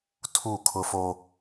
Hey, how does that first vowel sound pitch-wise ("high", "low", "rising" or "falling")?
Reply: falling